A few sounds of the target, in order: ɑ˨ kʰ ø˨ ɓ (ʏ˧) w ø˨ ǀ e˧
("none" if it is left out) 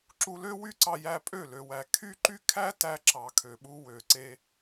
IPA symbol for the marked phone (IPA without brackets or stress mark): u˧